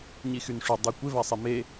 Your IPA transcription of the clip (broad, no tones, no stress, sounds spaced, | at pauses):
ɲ i x y n ʂ y dˤ i kʷ ɪ v a sˤ i m e